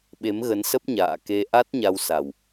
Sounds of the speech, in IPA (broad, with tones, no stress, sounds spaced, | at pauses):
ɓ e˨˦ m ɣ ə˨˦ n s ə˦˥ p̚ ɲ a̰ː˧˨ k e˧ ʔ a˦˥ t̚ ɲ a˧ w s a˨˩ w